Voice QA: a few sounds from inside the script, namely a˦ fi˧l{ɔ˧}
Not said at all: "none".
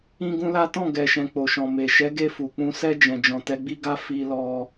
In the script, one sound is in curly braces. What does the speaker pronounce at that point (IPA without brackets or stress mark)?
ɔ˧